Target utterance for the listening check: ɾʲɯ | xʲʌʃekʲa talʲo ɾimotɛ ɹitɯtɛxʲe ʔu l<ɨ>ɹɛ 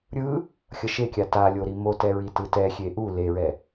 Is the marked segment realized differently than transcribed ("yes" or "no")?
yes